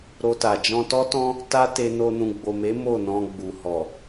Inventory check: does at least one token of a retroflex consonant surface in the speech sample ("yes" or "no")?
no